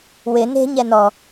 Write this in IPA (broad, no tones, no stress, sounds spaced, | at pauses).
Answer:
w ɪ n e̤ ɲ ɛ n ɔ